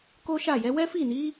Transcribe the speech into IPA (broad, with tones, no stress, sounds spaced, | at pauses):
k o˦ ʃ a˦˨ j ɛ˨˦ w ɛ˦ f i˦˨ n i˨˦